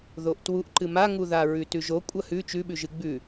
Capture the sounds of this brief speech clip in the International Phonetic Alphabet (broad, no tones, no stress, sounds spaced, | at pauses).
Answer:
ð o ʔ t w u ʔ ǃ ɨ m a ŋ u ð a ɹ ʉ t ʉ ʒ o kʷʼ ɐ h ʉ t͡ʃ ʉ ɓ ʉ ʒ ɨ ɡ͡b ʉ